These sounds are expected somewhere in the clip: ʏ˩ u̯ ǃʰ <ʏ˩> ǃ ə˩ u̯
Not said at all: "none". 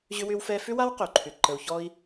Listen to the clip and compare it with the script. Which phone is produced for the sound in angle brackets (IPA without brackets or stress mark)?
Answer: ʏ˩